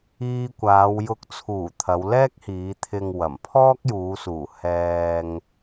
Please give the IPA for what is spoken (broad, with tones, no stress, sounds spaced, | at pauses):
iː˧ kʷ aː˨˧ w j ʊ˨ k̚ t͡sʰ uː˨˩ t̪ʰ ɐ˨˧ w l ɛː˥ k̚ h iː˨˧ t̪ʰ ɪ˨ ŋ w ɐ˨˩ m pʰ ɔː˥ k̚ j uː˨˧ s uː˨˩ h ɛː˨ ŋ